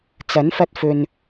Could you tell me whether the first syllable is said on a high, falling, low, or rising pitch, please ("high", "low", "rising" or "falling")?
rising